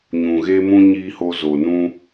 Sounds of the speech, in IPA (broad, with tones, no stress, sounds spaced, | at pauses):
ɲ ũ˨ ɣ e˦ m ũ˦ ɲ iː˦ h o˧ z o˨ n ũ˦